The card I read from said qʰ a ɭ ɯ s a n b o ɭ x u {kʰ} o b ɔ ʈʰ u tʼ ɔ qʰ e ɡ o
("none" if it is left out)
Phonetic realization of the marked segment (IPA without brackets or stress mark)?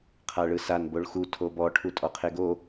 tʰ